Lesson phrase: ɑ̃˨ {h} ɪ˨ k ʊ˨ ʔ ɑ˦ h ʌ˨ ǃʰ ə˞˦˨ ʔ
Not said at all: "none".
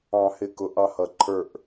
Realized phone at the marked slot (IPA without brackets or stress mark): h